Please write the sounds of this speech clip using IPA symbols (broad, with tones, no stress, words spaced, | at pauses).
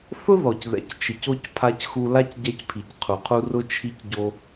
θʊ˦ðɔ˨c ðɛ̰˨ct͡ʃɪ˨co˧c pʰa˧cxu˧la˦c ɟɛ˧cpʰi˨cqʰu˨qʰu˧ rʊ˦t͡ʃʰi˦cɟo˦